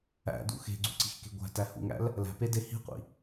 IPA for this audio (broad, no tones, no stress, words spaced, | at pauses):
æ̰dṵ xe̤ɡ͡ǀṳǀi̤xke̤ ɡʷæ̤tæhṵŋæ̰l | læ̤pede hi̤qʷḭ